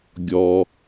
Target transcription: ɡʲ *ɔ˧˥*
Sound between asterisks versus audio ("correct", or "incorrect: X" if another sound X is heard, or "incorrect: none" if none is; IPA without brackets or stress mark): incorrect: ɔ˩